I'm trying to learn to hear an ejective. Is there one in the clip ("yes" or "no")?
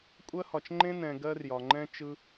yes